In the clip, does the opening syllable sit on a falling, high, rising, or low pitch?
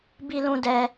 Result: high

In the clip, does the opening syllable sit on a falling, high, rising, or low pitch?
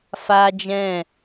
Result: high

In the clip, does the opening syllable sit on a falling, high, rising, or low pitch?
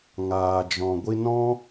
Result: low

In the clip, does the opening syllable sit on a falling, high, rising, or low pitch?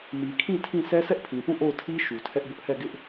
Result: low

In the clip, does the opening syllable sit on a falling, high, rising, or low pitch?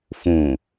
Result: low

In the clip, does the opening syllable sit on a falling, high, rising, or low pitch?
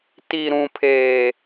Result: low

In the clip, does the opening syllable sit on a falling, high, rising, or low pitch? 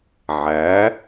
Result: rising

